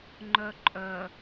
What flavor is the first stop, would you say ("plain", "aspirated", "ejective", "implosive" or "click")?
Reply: click